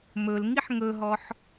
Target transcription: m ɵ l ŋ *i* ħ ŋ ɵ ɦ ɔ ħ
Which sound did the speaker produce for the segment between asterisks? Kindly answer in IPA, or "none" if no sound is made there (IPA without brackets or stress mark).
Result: i